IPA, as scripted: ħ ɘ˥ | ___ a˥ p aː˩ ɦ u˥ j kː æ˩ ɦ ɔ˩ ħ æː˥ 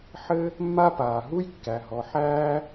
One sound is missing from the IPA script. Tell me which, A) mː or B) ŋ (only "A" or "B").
A